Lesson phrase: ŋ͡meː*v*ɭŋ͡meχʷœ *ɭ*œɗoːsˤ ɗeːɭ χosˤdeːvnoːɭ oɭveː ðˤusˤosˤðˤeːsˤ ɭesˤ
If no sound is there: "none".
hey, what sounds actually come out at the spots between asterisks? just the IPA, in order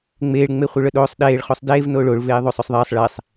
none, ɭ

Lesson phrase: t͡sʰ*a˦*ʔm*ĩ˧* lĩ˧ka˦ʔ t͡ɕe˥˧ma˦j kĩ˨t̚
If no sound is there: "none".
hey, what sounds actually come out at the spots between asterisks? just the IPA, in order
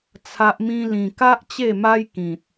a˦, ĩ˦

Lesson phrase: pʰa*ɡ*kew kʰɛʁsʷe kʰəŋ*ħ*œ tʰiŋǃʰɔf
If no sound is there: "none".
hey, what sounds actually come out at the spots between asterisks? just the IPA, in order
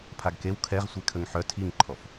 ɡ, ħ

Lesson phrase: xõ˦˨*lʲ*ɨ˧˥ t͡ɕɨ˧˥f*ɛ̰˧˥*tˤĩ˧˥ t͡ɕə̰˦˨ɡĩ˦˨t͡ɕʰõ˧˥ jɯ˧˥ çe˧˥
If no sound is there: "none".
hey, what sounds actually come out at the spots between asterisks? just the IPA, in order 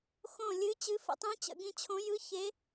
lʲ, ə̰˧˥

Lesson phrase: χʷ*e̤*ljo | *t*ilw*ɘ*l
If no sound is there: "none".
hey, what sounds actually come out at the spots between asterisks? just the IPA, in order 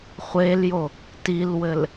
e, t, ɘ

